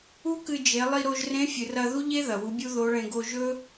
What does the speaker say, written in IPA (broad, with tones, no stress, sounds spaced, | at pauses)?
u˥ k ɨ˧ d͡ʒ e˩˧ lˠ i˧ ɾ o˧ ʒ r ẽ˧˥ fʲ ɨ˩ r ɐ˧ ð u˥ ʎ e˥ ð ɐ˩ w u˩˧ bʲ u˥ ð o˧˥ ɭ ẽ˧ ɡ o˧ ʒ ɵ˥